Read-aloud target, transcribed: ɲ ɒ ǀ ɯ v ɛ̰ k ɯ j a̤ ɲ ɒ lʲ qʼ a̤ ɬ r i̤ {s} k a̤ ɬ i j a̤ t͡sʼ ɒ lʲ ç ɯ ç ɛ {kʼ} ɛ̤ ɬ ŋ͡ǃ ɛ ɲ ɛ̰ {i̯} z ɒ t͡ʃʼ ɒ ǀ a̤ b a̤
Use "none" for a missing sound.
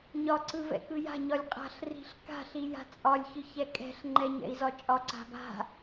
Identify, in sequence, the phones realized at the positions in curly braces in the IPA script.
ɬ, kʼ, i̯

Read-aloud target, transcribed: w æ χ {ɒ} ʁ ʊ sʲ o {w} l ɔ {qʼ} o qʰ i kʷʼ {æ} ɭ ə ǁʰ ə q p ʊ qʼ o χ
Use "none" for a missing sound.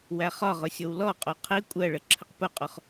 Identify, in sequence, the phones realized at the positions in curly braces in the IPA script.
ɒ, w, qʼ, ɜ

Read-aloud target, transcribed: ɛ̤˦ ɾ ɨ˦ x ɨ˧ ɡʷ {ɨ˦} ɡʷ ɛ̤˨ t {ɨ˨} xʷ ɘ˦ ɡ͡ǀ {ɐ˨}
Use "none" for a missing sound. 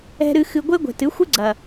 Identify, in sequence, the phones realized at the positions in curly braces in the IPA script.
e˦, ɨ˨˦, ɐ˨

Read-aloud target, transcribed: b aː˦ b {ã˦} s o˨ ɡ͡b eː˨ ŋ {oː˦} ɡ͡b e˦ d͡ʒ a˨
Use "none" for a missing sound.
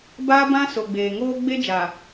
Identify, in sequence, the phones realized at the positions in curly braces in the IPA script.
ã˦, oː˦

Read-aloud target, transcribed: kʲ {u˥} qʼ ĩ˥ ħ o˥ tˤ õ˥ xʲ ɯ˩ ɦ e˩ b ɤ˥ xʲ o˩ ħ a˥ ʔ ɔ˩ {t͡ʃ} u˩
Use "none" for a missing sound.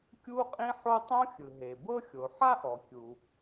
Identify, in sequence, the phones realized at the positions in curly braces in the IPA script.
u˥, kʲ

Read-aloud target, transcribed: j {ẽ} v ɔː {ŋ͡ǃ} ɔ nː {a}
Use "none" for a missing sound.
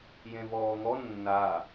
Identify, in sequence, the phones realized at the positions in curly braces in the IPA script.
ẽ, ŋ, a

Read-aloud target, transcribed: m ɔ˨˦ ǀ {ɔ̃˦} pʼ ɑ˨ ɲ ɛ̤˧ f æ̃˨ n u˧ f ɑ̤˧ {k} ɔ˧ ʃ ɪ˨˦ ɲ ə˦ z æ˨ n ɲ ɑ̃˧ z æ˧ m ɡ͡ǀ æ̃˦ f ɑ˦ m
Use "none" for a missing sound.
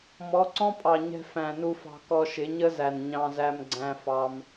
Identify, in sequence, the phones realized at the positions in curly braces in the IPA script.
ɔ̃˦, k

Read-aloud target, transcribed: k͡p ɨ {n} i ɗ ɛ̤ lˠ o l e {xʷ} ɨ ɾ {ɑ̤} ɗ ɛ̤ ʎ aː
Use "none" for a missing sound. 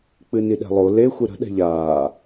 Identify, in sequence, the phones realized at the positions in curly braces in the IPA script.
n, xʷ, ə̤

